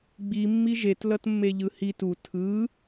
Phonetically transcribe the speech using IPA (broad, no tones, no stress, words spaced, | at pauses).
ɡ͡bimːi ʒetlʌtmːeʎɯ hit u tʰɯ